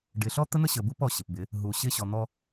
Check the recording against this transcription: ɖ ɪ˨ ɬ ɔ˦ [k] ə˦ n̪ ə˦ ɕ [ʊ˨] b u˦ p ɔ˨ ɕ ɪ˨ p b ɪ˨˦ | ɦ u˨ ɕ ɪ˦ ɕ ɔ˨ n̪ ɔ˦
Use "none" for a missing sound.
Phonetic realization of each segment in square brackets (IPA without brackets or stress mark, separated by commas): t̪, ə˨